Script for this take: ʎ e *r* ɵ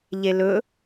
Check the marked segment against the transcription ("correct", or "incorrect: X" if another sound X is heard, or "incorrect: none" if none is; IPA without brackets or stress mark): incorrect: l